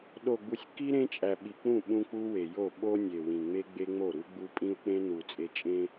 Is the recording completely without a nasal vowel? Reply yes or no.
no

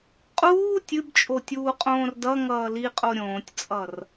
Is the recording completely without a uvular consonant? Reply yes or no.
no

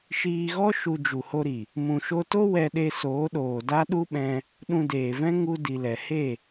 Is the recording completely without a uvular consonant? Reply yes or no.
yes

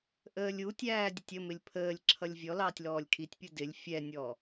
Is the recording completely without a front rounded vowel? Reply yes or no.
yes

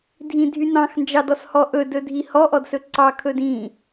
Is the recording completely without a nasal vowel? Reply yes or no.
no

